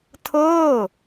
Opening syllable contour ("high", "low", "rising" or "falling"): falling